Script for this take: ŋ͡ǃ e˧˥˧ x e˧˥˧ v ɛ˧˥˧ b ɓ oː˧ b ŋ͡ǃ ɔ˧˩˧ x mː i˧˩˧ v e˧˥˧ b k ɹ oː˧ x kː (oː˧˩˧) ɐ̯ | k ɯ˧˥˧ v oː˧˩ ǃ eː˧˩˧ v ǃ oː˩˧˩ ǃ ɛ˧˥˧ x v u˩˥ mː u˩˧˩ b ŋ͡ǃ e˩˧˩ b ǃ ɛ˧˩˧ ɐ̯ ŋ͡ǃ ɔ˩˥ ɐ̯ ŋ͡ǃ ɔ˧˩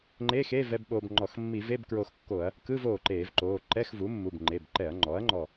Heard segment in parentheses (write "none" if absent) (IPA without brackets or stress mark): o˧˩˧